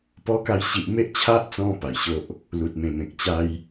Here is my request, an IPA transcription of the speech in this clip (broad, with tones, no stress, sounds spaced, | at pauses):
p ɔ˧ k a˧ j ɕ i˨ ʔ m e˦ ʔ t͡ɕʰ a˦ ʔ t͡s ɔ̃˧ p a˨˩ j ɕ o˦ ʔ | l u˨ t̚ m ẽ˨˩ m ẽ˨ k̚ t͡ɕ a˦ j